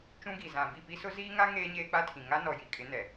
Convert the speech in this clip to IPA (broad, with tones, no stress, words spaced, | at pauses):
t͡ʃũ˦ɡi˨ zã˨ bi˦˨pi˦sʊ˦ ziː˦ŋa˦ ŋeː˦ɲeː˦k͡pa˦tʰĩ˨ ŋa˦nɔ˨ji˨kʼɪ˨˦ nɛ˨